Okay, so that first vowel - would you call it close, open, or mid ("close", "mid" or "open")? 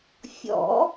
mid